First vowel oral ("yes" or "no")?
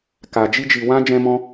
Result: yes